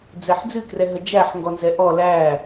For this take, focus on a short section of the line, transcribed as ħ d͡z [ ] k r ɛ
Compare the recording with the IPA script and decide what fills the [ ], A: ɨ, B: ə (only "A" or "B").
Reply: A